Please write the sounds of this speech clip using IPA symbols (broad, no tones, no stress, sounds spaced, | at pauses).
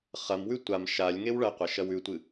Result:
χ ɐ m w ʉ tʷ a m ʃ a lʲ ŋ e w ɭ ɐ qʷ ɐ ʃ ɐ w ʉ tʷ ɨ